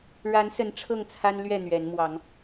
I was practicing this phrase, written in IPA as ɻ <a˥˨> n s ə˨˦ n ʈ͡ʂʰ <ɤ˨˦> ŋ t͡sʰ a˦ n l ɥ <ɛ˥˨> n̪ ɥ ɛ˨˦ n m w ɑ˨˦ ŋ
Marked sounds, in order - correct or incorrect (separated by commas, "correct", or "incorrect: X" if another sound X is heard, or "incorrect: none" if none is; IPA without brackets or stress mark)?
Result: incorrect: a˨˦, incorrect: ɤ˥˨, correct